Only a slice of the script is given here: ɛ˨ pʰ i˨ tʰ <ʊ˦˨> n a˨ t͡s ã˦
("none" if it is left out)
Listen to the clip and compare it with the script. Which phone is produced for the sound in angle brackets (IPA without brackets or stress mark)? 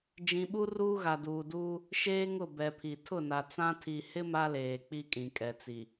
ʊ˦˨